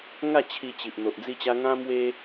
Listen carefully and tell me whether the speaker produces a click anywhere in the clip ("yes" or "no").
no